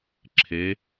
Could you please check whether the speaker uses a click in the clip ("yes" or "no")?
yes